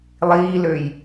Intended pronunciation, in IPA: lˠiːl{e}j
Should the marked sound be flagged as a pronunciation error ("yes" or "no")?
yes